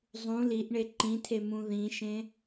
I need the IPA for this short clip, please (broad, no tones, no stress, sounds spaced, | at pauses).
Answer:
zˤ ũ l i ʔ ɳ e ǃ ĩ tʰ e m ũ ð ĩ ʃ ẽ